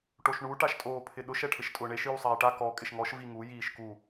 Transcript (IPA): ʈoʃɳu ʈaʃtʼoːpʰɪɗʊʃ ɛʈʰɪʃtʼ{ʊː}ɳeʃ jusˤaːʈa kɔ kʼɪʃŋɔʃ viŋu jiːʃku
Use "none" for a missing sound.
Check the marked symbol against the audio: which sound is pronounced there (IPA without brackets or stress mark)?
ʊː